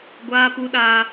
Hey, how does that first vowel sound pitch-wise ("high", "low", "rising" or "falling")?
high